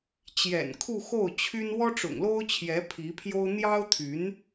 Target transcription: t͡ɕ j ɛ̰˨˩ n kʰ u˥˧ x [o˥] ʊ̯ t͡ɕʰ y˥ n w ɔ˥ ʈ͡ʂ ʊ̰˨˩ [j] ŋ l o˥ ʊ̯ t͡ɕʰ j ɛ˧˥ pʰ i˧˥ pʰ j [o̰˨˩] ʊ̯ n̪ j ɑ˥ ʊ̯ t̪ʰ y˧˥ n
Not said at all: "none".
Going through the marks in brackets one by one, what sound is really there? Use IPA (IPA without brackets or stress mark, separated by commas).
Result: o˥˩, none, o˥